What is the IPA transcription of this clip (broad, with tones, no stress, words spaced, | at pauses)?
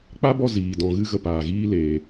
k͡pa˦bɔ˧ ziː˨dɔ̃˨ ɣɨ˦ɣə˧paː˨ɣiː˦ leː˧